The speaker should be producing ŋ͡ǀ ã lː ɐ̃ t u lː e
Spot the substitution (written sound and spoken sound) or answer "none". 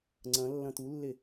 ã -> ɐ̃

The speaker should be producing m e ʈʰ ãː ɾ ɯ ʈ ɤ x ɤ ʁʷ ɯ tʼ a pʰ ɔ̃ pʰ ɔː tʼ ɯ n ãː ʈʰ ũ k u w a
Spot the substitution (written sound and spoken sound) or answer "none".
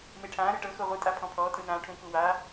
none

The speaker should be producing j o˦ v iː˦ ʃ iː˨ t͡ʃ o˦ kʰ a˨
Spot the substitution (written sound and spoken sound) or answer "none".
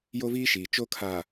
none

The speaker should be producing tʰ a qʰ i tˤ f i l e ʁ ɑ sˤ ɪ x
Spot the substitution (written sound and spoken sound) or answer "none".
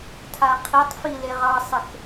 none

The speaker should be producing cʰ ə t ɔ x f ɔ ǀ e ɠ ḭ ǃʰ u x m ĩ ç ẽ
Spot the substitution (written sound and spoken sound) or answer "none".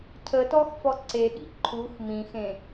ç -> x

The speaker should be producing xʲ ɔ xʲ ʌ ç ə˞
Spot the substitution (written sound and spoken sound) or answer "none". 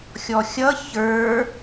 none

